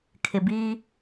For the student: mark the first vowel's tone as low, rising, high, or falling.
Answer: low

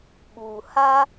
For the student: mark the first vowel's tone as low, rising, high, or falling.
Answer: low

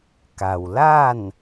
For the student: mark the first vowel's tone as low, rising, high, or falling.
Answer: low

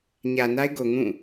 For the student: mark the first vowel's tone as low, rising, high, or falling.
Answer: low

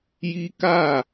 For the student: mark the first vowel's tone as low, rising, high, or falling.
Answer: high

